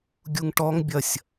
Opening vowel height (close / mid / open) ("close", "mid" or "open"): close